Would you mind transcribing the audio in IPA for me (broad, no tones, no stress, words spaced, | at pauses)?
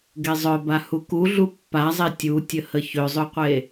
ɡezˤœba huku ɮupːazˤe tʲutʲəhə çøzˤøqʷe